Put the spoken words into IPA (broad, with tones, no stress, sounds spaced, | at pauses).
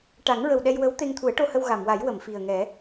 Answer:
ʈ a˨˩˦ ŋ ɹ ə˨˩ w ɗ ɛ˧ j w ə˧˥ w t̪ e˧ ŋ t̪ʰ u˨˩˦ ə̯ ʈ o˧ h ə˧ w ɣ a˨˩˨ m w a˨˩˦ j w ə˨˩˨ m f i˨˩ ə̯ ŋ ɛ˨˩˦